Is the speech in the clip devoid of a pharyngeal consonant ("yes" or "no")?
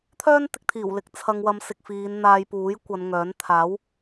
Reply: yes